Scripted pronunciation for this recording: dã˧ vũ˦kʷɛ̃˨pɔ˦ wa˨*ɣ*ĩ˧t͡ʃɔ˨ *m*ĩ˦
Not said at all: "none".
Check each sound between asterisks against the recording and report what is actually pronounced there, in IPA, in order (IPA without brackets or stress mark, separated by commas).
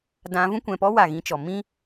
ɣ, m